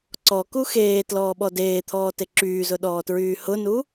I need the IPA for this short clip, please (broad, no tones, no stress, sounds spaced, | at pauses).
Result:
ǀ ɔ k u x eː t l ɔː ɓ ɔ d eː t̪ʰ ɔː t e ǁ yː z ʊ ɗ ɔː t ɹ yː h ʊ n u